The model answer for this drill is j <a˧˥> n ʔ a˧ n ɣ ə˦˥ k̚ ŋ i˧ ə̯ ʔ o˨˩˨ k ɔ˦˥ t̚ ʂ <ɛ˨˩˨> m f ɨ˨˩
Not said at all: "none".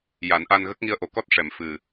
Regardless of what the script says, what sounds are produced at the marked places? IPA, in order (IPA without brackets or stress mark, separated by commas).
a˨˩˦, ɛ˨˩˨